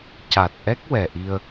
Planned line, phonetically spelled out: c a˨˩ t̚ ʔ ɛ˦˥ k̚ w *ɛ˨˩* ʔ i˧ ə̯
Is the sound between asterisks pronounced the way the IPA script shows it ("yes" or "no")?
yes